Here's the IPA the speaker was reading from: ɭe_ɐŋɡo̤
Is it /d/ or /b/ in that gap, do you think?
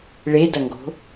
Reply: d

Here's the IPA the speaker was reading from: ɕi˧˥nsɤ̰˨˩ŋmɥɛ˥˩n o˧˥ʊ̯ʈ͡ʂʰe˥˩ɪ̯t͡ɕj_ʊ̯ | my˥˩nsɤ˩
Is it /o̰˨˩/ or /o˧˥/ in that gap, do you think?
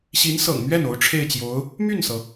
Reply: o˧˥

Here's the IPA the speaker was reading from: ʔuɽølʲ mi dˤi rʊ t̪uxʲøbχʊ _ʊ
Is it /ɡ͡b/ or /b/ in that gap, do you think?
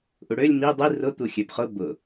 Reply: b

